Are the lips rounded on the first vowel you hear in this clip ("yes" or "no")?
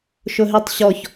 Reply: yes